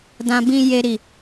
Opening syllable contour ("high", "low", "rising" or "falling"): low